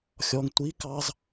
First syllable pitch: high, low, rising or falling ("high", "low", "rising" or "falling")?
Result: low